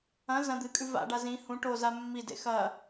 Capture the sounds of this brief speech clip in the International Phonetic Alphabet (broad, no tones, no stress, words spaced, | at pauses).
ɐ̃ zɐ̃ d̪ɨkʼʉ va̰ɖa zĩ hũ ʈoza mːidḛ xɐ